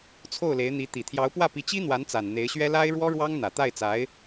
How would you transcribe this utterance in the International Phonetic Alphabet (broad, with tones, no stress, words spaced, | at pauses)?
t͡sʰo˥˩ʊ̯le˧˥ɪ̯ n̪i˧˥ t̪i˨˩t̪ʰjɑ˧˥ʊ̯pwä˥˩pi˧˥ t͡ɕi˥n̪wa˧˥nt͡sa˨˩n n̪e˧˥ɪ̯ɕɥɛ˥ la˥ɪ̯ɻwɔ˥ɻwɑ˥ŋ n̪ä˨˩t̪a˥˩ɪ̯t͡sa˧˥ɪ̯